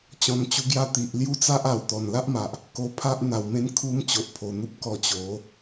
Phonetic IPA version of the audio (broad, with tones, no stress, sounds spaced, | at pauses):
t͡ɕ ɔ̃˨˩ n t͡ɕ u˧ ɡ j a˦ t̪ i˨ ʔ l j u˦ t͡s a˦ ʔ a˨˩ w t̪ ɔ˨˩ n l a˦ ʔ m a˨ ʔ | k o˧ pʰ a˦ ʔ n̪ a˨˩ w m ẽ˦ n kʰ u˦ m t͡ɕ o˨ ʔ pʰ o˨˩ n̪ u˦ p̚ k ɔ˧ t͡ɕ o˨˦